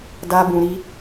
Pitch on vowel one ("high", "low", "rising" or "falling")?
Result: high